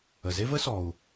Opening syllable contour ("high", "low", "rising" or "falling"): low